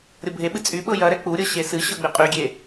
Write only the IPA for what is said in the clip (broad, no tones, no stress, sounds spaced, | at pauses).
ɾʲ ɤ bʱ e ɓ ɨ t͡sʼ y ɓ ɤ j ɐ ɾ ɛ k͡p u ɾʲ ɤ ɕ e s ɨ ɕ ɤ ɡ͡b e qʼ y ɡʲ e